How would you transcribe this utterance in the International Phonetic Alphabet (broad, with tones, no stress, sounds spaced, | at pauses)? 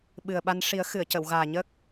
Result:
ɓ ɨ˨˩ ə̯ ɓ a˧ n ʂ i˨˩˦ ə̯ x ɨ˨˩˨ ə̯ c ə˨˩˨ w ɣ aː˨˩ ɲ ə˦˥ k̚